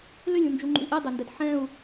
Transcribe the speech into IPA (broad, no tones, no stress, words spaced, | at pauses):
lʏlʲũnd͡ʒuŋ͡ǃṵi̯ ʔedˤendɛd ħɛ̃u̯